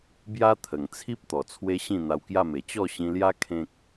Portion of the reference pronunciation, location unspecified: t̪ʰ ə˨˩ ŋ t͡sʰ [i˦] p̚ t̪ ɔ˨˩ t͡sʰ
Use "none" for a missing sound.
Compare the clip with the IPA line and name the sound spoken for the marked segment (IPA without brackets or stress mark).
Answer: i˦